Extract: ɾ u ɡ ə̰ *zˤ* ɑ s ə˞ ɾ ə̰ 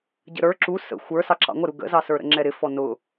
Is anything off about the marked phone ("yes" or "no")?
yes